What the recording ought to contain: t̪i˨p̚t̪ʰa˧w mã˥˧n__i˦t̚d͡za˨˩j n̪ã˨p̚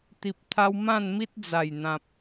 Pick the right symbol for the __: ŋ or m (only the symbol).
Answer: m